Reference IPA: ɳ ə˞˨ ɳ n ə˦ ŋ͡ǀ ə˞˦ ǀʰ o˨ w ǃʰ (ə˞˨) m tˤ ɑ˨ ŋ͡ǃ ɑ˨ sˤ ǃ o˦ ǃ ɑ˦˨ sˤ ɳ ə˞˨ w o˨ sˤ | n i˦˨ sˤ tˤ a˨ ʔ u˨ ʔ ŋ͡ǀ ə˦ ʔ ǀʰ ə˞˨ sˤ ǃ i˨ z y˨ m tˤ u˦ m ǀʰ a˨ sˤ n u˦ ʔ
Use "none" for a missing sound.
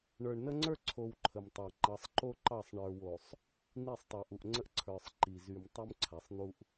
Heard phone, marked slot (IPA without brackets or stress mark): ə˨